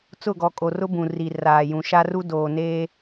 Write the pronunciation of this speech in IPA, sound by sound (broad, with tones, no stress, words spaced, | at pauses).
t͡sʊ˦˨ɡɔ˨kʼo˨rʊ˦ bũ˨ri˨ raː˨jũ˨ ʃa˦ru˦ doː˨neː˦